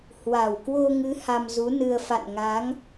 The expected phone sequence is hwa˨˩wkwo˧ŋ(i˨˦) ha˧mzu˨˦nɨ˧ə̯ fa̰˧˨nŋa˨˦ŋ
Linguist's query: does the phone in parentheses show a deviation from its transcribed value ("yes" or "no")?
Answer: yes